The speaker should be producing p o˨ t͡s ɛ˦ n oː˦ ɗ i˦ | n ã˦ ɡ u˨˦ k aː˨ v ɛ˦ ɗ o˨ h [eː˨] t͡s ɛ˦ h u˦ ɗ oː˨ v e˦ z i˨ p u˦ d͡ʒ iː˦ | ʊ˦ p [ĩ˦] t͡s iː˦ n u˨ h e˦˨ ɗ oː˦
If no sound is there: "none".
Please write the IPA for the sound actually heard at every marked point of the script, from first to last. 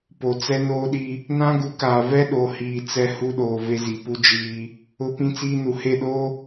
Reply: iː˨, ĩ˦

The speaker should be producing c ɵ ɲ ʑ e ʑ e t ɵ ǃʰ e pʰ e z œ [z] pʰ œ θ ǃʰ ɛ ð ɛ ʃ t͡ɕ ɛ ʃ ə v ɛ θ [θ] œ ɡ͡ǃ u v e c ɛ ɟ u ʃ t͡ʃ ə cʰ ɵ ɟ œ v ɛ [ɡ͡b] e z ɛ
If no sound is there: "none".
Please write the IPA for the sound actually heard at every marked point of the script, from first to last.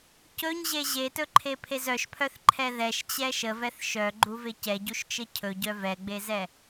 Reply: ʃ, ʃ, ɡ͡b

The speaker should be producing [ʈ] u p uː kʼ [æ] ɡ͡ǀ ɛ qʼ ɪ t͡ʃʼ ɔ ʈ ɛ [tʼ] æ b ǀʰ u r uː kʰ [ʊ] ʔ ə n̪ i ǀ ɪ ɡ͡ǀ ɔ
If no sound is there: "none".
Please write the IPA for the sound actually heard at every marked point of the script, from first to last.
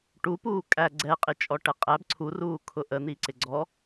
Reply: ʈ, æ, qʼ, ʊ

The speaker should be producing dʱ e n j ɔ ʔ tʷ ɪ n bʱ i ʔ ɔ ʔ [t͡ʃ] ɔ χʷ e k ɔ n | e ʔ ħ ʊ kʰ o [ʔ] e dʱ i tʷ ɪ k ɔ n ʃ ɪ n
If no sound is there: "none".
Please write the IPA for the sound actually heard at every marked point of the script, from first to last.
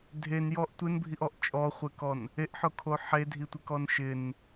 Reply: t͡ʃʼ, ħ

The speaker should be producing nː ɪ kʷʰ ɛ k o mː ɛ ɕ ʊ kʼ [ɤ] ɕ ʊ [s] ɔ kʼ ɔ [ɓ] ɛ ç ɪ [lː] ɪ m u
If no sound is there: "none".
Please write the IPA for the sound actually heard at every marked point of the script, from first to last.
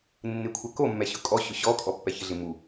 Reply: ɔ, ɕ, pː, ɮ

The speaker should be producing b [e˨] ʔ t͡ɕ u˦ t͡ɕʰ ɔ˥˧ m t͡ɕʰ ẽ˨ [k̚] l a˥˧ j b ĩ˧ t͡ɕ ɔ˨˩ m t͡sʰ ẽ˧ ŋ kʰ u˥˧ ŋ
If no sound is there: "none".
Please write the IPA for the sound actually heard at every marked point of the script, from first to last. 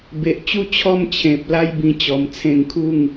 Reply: e˨, p̚

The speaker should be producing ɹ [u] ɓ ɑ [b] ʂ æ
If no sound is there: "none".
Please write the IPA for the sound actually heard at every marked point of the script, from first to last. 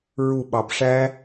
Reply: u, b

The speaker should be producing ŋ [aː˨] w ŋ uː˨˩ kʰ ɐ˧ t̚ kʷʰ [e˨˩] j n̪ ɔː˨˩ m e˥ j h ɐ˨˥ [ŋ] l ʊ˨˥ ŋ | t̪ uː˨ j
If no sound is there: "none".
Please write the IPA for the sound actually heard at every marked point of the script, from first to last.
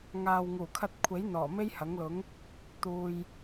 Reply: aː˨, e˨˥, ŋ

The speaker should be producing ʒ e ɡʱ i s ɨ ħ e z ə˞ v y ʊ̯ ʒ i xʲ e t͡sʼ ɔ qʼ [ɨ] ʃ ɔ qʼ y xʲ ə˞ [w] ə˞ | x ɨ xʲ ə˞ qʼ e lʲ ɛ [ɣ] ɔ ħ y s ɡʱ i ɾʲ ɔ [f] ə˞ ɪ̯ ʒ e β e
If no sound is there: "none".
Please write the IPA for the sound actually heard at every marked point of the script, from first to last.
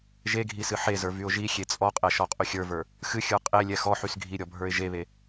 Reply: ɛ, v, x, bʱ

